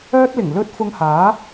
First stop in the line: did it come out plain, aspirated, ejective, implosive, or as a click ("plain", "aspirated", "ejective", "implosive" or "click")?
plain